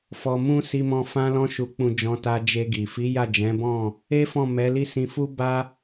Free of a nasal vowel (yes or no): no